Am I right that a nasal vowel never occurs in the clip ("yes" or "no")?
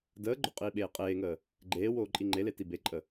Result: yes